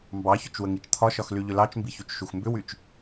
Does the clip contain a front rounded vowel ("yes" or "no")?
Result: yes